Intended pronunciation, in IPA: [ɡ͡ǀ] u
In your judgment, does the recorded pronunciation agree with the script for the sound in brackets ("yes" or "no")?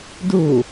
no